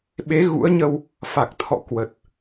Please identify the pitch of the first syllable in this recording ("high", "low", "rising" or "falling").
rising